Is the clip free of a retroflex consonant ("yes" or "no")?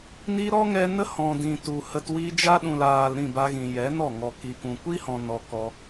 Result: yes